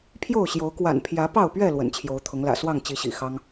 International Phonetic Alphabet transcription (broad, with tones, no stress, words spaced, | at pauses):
pʰjo˥˨ʊ̯ɕjo˨˦ʊ̯ kwa̰˨˩npʰjä˨˦pɑ˥˨ʊ̯pɥɛ˥˨ lwə̰˨˩nt͡ɕʰjo˨˦ʊ̯t̪ʰʊ˨˦ŋ lä̰˨˩swɑ˥˨ŋ t͡ɕi˨˦ɕḭ˨˩ xɑ˦ŋ